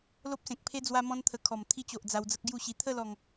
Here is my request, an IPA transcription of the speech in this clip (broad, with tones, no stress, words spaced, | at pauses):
lo˦p̚sẽ˨k̚pʰe˦ d͡zwa˦mɔ̃˦nt̪ʰə˧ kʰɔ˨˩m t̪ʰi˧t͡ɕo˨ʔ d͡za˧wd͡zə˦k̚ɡju˥˧ɕi˧ t̪ʰə˥˧lɔ˨˩ŋ